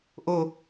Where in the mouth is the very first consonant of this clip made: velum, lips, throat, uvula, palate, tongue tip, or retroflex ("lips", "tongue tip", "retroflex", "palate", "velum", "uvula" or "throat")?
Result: throat